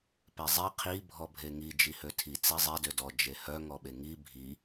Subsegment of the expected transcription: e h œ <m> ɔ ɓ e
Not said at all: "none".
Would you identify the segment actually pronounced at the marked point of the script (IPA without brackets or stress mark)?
ŋ